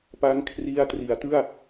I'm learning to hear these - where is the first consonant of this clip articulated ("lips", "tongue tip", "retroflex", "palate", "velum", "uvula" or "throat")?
lips